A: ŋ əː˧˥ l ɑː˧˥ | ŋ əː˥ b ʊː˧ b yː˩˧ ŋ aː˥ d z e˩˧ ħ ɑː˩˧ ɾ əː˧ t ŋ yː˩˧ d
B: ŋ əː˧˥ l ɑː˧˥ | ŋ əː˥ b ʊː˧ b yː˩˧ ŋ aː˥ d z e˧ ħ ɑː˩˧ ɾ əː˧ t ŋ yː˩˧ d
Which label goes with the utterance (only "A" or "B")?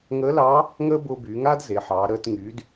A